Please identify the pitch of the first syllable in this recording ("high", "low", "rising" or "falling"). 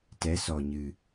rising